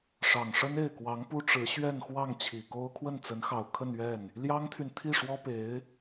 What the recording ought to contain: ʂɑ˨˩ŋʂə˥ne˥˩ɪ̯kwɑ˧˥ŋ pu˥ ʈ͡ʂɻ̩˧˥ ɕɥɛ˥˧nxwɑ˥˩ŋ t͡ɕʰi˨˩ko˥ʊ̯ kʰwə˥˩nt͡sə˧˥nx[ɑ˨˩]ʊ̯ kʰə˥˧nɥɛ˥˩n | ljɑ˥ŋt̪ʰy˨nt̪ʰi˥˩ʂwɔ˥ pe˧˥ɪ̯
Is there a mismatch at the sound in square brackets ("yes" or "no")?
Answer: no